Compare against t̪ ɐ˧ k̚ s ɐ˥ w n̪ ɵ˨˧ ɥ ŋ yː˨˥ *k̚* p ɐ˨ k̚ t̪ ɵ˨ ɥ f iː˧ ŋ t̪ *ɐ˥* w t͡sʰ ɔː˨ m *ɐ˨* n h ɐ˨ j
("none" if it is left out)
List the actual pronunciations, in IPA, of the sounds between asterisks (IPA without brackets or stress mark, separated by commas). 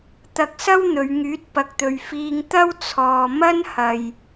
t̚, ɐ˥, ɐ˥